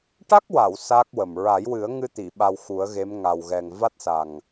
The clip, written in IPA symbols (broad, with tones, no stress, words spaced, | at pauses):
ʈa˦˥k̚wa˨˩˨w sa˦˥k̚wə˨˩m ɹa˨˩˦jwɨ˨˩˦ə̯ ŋɨ˧t̪i˨˩˨ ɓa˧wxu˨˩˦ə̯ɣe˧˥m ŋa˨˩wɣɛ˨˩ŋ va˦˥t̚sa˨˩ŋ